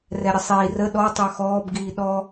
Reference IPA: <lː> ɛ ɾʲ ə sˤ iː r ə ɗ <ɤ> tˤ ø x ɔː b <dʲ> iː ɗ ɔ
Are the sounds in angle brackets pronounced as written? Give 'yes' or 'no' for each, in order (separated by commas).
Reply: no, no, no